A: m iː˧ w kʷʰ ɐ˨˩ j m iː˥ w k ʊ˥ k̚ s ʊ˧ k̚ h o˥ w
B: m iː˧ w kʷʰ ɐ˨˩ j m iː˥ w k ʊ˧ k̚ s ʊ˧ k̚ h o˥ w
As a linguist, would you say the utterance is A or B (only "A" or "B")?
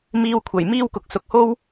B